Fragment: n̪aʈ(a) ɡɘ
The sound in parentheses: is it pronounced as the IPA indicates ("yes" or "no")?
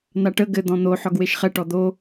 no